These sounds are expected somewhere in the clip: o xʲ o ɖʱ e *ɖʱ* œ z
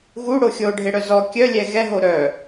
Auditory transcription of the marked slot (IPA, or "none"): ɽ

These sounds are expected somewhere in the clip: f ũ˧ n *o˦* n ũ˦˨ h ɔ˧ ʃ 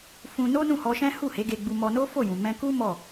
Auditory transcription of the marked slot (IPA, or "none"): o˦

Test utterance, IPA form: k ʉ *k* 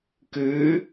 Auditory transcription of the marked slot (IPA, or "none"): none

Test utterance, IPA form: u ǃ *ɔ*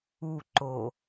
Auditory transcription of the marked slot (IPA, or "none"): o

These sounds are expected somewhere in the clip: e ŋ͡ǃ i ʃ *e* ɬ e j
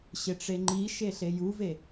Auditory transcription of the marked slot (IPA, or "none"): e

